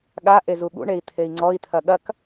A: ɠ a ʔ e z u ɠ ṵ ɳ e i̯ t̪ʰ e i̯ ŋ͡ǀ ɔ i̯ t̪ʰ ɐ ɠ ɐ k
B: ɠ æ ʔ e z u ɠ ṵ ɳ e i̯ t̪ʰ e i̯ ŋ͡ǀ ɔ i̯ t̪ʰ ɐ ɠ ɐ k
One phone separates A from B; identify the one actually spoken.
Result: A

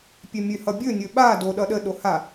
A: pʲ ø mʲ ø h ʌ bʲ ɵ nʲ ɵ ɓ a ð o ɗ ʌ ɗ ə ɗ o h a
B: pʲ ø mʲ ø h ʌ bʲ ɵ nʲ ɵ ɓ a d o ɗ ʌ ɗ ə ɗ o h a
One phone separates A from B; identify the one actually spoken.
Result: B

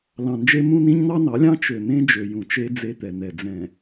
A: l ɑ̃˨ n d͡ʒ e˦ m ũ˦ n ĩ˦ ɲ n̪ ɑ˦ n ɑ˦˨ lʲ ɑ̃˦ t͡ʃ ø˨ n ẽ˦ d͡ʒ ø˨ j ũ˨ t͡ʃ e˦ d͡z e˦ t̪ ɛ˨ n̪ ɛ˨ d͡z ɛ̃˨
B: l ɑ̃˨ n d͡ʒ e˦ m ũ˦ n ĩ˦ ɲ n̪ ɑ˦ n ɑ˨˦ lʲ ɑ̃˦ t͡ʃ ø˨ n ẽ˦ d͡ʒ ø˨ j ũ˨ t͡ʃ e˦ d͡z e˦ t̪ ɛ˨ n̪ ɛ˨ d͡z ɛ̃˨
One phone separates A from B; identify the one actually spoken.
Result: B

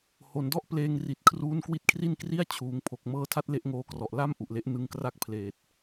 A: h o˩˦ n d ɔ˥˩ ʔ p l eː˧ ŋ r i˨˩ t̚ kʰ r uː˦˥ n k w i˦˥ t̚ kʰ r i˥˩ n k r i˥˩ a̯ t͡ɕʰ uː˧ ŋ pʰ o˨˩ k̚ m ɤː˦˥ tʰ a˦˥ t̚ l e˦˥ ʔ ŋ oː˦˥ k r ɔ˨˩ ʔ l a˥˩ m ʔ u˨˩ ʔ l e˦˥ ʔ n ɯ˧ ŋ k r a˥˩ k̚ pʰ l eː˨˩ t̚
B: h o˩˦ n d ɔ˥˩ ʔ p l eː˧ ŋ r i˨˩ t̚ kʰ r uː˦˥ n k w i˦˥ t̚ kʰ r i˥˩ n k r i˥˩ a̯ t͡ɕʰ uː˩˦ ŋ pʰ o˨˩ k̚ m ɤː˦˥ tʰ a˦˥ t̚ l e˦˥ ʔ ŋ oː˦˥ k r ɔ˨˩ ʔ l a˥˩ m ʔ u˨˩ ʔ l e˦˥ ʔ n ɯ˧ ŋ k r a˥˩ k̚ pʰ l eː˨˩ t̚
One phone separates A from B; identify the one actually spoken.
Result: B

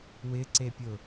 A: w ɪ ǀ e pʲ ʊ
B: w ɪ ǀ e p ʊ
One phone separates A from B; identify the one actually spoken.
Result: A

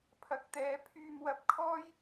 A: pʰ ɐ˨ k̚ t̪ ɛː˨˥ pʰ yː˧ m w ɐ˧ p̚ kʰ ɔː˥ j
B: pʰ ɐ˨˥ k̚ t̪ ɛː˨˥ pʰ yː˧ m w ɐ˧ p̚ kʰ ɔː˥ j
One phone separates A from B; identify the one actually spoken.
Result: B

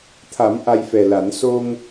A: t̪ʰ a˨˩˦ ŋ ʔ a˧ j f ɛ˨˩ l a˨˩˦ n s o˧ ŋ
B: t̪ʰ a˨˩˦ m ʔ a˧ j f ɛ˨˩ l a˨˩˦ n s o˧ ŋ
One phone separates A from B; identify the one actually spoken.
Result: B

